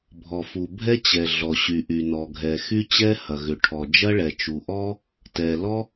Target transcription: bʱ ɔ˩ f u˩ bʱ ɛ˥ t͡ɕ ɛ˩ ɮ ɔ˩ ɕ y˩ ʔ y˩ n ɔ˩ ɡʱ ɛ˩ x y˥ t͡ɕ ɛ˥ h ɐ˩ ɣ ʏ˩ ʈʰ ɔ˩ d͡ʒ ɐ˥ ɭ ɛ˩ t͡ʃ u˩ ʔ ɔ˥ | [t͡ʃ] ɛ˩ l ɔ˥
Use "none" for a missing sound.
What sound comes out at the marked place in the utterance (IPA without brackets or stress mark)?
t